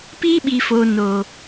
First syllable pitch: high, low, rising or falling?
high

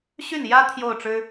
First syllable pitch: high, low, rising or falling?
falling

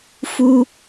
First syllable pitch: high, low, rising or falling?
high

